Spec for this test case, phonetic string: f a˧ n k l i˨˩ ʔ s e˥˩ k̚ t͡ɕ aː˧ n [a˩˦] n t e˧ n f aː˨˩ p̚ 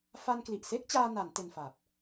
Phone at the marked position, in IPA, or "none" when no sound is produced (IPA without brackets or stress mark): a˩˦